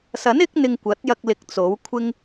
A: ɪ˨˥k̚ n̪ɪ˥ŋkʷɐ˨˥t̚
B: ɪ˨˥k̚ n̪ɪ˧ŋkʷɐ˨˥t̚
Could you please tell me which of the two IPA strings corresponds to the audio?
B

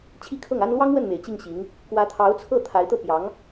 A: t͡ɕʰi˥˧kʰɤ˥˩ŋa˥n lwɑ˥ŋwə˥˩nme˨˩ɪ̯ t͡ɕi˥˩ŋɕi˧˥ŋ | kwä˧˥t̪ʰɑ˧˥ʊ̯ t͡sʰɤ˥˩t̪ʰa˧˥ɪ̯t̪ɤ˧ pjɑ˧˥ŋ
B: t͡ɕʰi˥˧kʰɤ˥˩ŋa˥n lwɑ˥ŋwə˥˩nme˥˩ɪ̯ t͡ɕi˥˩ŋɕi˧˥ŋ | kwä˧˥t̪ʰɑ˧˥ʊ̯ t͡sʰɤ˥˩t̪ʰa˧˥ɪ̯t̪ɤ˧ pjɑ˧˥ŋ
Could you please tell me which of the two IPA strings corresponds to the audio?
A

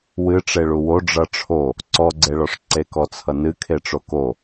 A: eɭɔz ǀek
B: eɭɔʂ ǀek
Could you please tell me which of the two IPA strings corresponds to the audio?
B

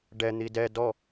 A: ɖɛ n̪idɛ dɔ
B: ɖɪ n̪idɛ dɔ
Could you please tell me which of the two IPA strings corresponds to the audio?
A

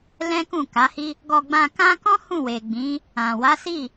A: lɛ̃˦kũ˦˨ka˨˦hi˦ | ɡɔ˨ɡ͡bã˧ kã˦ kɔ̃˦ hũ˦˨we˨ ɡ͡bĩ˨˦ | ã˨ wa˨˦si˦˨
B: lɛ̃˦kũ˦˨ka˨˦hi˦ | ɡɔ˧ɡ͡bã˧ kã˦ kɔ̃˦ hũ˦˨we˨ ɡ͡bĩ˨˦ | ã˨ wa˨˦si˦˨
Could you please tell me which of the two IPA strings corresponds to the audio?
B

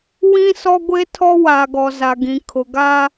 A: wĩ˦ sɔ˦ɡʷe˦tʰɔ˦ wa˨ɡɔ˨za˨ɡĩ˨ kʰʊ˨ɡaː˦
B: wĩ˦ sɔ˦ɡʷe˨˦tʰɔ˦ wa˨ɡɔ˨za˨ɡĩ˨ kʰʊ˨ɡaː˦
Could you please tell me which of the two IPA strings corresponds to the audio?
A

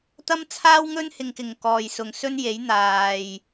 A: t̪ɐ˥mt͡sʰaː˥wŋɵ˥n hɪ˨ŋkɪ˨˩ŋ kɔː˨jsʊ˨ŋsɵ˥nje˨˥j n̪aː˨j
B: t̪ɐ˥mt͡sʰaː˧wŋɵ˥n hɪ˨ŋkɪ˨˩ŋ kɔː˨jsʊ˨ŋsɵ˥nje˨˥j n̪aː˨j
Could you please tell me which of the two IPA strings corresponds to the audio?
A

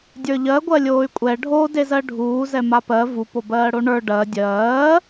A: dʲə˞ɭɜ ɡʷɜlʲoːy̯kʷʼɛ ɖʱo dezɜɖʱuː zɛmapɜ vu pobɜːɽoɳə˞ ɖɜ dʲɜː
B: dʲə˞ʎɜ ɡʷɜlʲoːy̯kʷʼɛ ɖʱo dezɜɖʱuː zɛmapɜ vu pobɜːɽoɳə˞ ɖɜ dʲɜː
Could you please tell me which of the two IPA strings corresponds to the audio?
B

